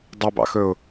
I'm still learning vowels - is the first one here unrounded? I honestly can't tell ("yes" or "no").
no